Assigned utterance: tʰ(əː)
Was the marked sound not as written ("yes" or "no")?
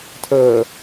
no